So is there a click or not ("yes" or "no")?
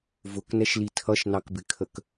no